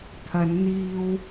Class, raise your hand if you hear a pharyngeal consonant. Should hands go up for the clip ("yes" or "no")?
no